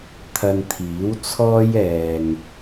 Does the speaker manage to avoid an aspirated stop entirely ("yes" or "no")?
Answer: no